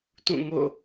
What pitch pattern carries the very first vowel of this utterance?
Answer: falling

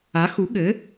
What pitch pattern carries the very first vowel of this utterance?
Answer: rising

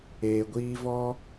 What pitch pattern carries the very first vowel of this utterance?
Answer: low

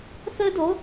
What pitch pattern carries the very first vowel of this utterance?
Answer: high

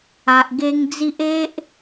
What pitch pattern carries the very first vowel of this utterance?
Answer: low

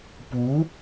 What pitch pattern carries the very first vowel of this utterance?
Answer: rising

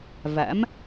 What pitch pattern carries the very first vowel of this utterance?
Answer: rising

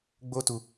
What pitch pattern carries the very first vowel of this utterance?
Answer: high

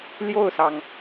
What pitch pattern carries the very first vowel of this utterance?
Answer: falling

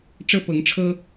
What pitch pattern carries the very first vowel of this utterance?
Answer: high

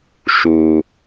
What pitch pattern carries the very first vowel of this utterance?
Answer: low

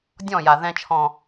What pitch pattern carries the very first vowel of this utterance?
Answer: falling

